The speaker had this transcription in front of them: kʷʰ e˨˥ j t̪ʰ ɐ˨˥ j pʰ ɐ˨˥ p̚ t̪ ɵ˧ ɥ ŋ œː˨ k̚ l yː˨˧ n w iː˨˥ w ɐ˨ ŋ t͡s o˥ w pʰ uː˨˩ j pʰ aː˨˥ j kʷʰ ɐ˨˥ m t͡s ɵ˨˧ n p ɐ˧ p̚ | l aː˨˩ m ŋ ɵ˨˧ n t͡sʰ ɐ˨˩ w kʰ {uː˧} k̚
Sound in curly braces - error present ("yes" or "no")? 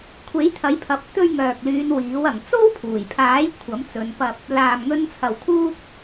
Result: no